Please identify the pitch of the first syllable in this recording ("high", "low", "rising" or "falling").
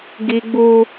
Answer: high